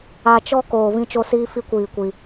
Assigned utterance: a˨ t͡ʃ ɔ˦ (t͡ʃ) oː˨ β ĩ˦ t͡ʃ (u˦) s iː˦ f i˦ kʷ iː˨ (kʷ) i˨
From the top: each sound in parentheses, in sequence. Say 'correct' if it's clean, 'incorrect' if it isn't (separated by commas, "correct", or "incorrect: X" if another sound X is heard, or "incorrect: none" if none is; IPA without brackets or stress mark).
incorrect: k, incorrect: o˦, correct